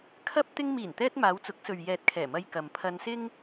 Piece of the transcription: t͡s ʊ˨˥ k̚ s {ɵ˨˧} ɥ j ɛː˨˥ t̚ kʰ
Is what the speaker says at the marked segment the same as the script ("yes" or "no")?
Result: no